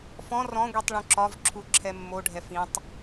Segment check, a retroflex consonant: present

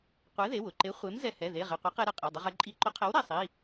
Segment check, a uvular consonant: present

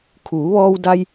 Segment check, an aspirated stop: present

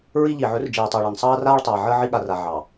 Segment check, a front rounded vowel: absent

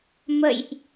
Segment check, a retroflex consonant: absent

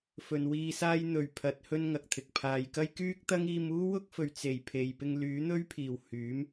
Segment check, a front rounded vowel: present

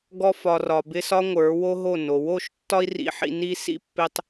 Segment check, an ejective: absent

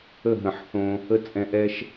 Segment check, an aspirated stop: absent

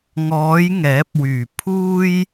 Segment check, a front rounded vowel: present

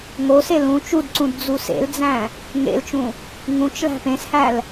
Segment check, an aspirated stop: absent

